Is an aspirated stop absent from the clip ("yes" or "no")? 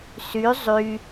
yes